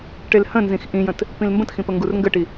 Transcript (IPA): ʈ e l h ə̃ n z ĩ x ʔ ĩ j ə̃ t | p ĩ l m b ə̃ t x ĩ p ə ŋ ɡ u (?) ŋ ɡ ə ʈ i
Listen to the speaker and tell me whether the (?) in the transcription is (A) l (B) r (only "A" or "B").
B